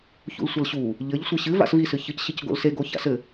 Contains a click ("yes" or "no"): no